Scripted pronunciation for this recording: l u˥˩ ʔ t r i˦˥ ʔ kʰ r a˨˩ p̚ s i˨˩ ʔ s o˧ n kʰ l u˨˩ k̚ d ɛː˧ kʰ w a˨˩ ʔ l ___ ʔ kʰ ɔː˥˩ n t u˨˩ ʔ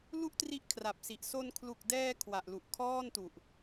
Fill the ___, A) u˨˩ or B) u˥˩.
A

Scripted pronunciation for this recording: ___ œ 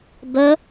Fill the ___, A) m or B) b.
B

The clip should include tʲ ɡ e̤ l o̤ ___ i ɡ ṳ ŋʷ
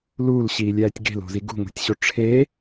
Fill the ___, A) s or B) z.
B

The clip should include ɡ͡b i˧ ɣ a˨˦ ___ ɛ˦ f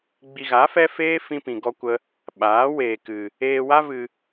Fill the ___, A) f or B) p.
A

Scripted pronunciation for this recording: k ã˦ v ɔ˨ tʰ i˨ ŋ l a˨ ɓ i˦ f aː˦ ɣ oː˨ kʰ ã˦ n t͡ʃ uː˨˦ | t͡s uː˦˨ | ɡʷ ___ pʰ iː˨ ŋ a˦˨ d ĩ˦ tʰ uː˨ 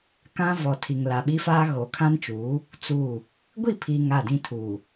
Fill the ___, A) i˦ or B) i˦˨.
B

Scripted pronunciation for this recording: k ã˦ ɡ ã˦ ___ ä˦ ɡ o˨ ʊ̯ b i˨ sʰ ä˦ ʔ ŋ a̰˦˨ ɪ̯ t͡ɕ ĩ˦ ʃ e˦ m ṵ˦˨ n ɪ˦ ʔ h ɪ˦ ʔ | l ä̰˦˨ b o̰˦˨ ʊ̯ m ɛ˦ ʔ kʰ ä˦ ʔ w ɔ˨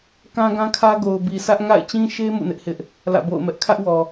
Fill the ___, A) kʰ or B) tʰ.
A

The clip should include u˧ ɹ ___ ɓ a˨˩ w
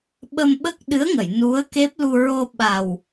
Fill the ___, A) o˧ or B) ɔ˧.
A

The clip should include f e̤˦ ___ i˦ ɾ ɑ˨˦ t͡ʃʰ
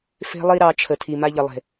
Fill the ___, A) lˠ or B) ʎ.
A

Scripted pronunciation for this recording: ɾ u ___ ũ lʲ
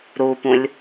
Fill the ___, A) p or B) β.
A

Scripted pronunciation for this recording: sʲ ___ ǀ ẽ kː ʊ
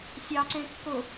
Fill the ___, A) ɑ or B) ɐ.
A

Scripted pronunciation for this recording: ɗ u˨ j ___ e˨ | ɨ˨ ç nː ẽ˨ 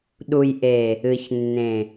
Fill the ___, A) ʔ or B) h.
A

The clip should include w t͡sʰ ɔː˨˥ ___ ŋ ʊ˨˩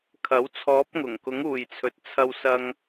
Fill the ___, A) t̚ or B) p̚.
B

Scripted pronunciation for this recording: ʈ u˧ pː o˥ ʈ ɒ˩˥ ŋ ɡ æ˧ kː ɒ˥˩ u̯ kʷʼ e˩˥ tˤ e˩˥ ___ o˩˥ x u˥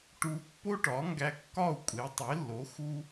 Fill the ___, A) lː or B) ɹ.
A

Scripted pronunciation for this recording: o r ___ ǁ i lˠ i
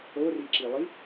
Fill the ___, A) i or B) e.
A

